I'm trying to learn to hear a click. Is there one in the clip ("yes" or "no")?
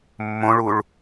no